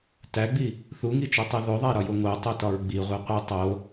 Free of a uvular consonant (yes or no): no